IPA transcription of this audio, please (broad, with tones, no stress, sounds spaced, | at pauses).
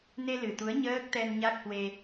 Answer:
n e˧ l ɨ˨˩ t̪ u˨˦ ə̯ ɲ əː˦˥ k̚ t̪ ɛ˧ n ɲ a˦˥ k̚ h w e˧